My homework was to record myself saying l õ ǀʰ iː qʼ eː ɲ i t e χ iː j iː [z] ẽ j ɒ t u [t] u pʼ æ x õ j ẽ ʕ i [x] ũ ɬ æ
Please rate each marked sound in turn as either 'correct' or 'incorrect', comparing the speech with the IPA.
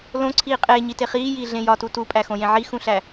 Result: incorrect: ɮ, correct, correct

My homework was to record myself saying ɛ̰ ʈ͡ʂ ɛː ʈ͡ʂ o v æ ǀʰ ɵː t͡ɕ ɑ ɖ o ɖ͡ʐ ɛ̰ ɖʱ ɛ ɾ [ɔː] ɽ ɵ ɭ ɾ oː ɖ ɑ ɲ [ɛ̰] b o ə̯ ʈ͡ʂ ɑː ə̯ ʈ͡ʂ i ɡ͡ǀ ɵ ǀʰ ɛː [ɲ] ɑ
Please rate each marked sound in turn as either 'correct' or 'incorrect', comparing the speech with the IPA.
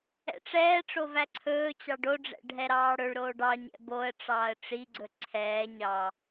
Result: incorrect: ɑː, correct, correct

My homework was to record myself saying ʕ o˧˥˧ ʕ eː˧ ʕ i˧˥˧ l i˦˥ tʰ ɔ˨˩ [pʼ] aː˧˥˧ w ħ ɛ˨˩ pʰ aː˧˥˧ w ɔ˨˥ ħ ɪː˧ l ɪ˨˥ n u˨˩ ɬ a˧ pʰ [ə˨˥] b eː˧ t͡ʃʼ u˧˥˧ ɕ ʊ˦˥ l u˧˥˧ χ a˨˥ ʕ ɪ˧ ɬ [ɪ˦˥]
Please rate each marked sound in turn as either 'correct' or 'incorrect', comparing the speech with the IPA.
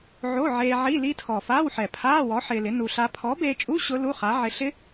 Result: incorrect: f, incorrect: ɔ˨˥, correct

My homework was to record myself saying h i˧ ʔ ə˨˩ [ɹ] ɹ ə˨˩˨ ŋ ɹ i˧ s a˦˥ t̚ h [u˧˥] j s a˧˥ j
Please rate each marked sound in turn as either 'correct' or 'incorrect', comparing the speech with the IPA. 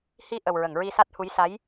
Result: incorrect: w, correct

